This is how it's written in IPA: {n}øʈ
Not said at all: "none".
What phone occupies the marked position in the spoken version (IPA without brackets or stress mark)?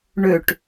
ɳ